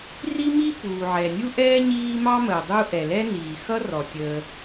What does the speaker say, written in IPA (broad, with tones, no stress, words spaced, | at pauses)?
ri˥mi˥ puː˩ʕɛ˩nʲu˥ʔɛː˥ ɲiː˥ mɑ˥məː˩ dˤu˥ ʔɛ˩lɛ˥niː˩ xʌ˥rɔ˩ tʲəː˩